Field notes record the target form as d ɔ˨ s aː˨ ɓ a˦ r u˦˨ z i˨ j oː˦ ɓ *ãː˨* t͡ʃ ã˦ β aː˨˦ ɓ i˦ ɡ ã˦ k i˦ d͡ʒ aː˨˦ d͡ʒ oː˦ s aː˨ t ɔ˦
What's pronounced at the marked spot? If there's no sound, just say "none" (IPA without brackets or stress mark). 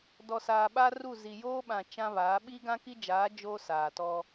ã˨